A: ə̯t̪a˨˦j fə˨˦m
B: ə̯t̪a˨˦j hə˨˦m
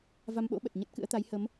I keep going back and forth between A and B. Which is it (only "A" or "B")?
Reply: B